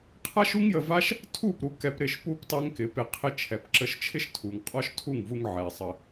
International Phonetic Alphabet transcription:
qʰa˦ʃu˦ŋjə˧va˦ʃ | tʰu˦˨pɾu˧ kɛ˧p ɾɪ˦˨ʃpu˦p tˤɛ˦ŋkɪ˨˦pɪ˧qʰɪ˦ t͡ʃʰɛ˨pǁə˧ʃt͡ʃʰɪ˦ʃ tʰu˨ŋ qʼɔ˦ʃtʰu˦˨ŋvu˧ŋ ʕɛ˨sˤə˧

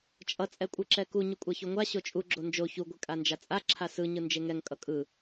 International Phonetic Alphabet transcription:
t͡ʃʼʌ t͡sʼɛkʷʼɯǁɛku ɲukʷʼaçoŋʷa ɕot͡ʃʼu ɡ͡ǁond͡ʒo çu ɡʷekʼand͡ʒat͡sʼa ǁʰasɯ ɲɯnd͡ʒeŋɛŋ kʼʌkʼɯ

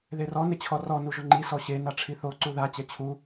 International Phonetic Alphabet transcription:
ðerɔ nɪt͡ɕʰɔrɔ nuʒʊŋ͡ǃi sɔɕe naʈ͡ʂʰiθo ǀuða t͡ɕɛt͡ɕʰu

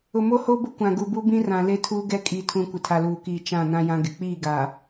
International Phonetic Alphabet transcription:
ʊ˨mo˦ho˦bʊ˦ kʷã˨ ɡu˨bu˦bĩ˦ rã˨ le˦tʰuː˦ɡɛ˦ kʼi˨tʰũ˨ kʷɪ˨tʰa˨luː˨kiː˨ t͡ʃã˦˨ nã˦jã˦ɡɪ˨ k͡piː˦˨ɡaː˨

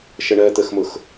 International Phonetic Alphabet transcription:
ʃəɳɜ t̪əxmʊx

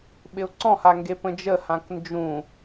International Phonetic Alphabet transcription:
ɓɪʊ̯ǀɔ̃ha ŋɡepə̃d͡ʒəhãk nd͡ʒũ

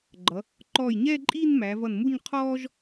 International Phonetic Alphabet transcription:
ɡ͡ǃʌ˩˧ | ǃɔː˧˩jɲɛː˥˧ǃʼiː˥˧n mæ˩˧vʌ˧˩nmu˥˧ɲ qʰɔː˥ʒ

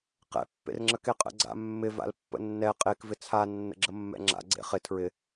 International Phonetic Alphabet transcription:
qɛ̰ pːḛrŋ͡ǁəkeqʼə̰ ɡ͡ǀa̰mːɪ va̰lpːə̰nːɛ qʼek vɪt͡sʰa nːə̰ɡ͡ǁəmːɛ̰ŋ͡ǁa̰ ɡ͡ǀḛχɪ tʰɹɪ

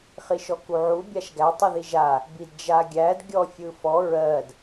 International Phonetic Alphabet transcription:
χiʃɔkuʕu bʲaʃɡæ tˤɯðiʒa | bidd͡ʒaɡʲæd ɡʲɔfʲɯfɔ ɹɜd

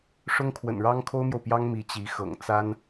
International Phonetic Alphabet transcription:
ʂʊ˥ŋkʰwə̰˨˩nɻɑ˥ŋ kʰo˥ʊ̯mjo˨ʊ̯pjɑ˥ŋ mi˧˥t͡ɕi˧˥xɤ̰˨˩ŋ t͡sa˥n

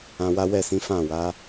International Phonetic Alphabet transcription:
ã˧wa˦ wɛ˦˨sĩ˨˦ fã˦˨wa˨˦

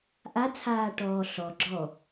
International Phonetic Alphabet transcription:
ʔat͡sʰaːʈɔː ɬɔɡ͡ǁɔ

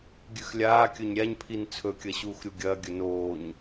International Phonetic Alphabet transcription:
ɡʲʉxlʲaːkʲɵɲ ɾʲaɲpʰin t͡sʰɵkʲɐ ɕuːxɾʲuɡʲɐːɡʲɵ noːɲ

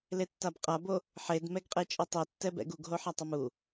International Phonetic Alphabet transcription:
letːabqʼabo | ħedmɛɡqʼet͡ʃʼɯ tˤitːɛbɛ̰ɡ uɡɦoħatˤam u

